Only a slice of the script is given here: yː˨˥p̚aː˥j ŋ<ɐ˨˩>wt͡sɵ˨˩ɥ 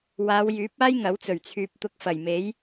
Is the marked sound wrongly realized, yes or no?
yes